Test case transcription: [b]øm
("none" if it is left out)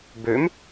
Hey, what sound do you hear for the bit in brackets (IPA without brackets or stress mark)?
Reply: b